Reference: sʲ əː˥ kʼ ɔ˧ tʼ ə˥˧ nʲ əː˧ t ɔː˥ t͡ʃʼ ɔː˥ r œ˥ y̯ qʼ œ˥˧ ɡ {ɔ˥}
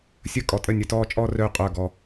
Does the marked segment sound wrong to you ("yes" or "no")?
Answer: yes